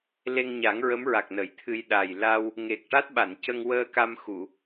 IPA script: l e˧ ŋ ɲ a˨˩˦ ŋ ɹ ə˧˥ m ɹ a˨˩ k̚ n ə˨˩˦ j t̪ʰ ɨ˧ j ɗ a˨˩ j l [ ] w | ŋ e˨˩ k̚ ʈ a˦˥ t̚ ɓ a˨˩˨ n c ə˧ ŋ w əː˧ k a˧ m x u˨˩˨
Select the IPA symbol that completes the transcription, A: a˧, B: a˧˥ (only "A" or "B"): A